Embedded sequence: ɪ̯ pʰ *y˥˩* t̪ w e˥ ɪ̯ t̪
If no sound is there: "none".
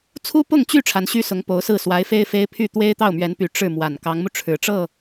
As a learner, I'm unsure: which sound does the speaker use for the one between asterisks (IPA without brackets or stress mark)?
y˥˩